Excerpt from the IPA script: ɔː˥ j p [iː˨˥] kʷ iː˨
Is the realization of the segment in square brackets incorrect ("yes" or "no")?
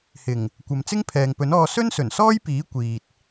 no